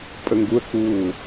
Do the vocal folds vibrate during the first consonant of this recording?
no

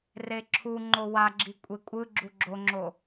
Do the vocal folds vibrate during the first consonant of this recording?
yes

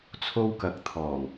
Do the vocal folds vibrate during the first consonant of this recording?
no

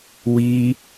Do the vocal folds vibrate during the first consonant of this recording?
yes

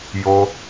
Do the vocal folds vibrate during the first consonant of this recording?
yes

